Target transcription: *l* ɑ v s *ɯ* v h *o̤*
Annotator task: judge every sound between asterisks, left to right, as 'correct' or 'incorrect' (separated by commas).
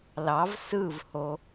correct, correct, incorrect